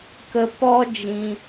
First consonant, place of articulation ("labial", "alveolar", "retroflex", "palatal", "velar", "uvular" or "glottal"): velar